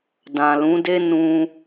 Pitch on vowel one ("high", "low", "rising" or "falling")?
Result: low